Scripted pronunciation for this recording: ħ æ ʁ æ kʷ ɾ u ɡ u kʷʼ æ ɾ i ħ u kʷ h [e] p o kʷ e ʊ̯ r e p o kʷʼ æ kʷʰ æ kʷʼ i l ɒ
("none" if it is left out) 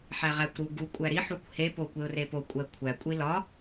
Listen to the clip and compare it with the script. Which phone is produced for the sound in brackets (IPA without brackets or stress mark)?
e